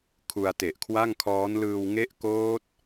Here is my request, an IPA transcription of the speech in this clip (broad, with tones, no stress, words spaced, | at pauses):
kʰu˧a̯te˨˩ʔkʰwa˥˩ŋkʰɔː˦˥n lɯː˧wŋe˦˥ʔ koː˦˥t̚